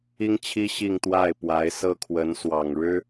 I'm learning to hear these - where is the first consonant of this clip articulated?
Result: velum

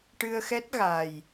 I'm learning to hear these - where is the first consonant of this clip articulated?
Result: retroflex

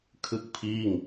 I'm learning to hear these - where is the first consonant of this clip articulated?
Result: velum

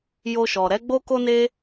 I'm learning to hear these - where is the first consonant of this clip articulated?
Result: palate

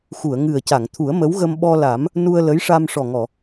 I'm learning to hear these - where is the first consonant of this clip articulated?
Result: velum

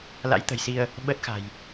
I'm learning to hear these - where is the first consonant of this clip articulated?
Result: tongue tip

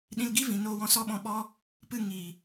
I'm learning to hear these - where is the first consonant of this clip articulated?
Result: tongue tip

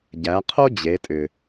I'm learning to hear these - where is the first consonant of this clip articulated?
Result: palate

